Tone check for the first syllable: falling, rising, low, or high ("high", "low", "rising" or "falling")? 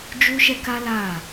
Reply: high